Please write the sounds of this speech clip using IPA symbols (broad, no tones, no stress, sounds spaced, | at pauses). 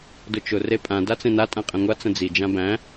d ʊ t͡ʃ ʊ r e pʼ ã d a t͡s ẽ n a tʼ ã qʼ ɛ̃ ŋʷ a t͡s ə̃ d͡z i d͡ʒ ã b æ̃